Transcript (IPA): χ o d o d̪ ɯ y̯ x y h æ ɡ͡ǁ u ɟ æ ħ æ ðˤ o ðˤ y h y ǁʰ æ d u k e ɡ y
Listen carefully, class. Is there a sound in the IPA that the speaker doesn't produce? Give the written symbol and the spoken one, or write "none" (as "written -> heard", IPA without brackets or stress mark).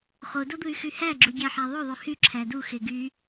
k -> x